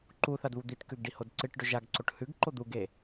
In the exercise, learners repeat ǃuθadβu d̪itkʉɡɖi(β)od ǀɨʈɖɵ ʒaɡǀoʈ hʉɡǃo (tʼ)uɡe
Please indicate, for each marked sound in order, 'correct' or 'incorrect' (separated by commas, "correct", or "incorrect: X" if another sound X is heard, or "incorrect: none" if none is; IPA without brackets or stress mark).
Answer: incorrect: h, incorrect: d̪